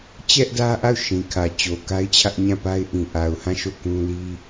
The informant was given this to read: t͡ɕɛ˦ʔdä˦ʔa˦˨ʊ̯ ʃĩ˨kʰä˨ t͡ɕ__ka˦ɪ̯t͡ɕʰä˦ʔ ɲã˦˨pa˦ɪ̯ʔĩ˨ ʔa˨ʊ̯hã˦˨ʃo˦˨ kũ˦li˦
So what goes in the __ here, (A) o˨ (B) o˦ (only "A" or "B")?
A